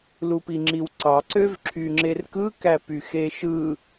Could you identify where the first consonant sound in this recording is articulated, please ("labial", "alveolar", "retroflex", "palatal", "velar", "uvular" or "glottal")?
alveolar